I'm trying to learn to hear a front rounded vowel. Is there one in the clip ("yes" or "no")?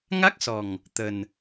no